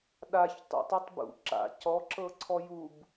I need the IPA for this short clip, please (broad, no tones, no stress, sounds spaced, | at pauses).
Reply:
ɗ a ç tˤ ṵ tˤ i tˤ b ṵ ǁ a̰ c ɔ ǁ ɤ ǀʰ ɔ j u b